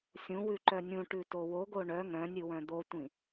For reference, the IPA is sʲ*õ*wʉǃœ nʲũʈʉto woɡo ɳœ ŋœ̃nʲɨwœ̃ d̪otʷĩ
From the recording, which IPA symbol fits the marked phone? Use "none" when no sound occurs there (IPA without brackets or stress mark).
ũ